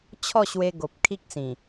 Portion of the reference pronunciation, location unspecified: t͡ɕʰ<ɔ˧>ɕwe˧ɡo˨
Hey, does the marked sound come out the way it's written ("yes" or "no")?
no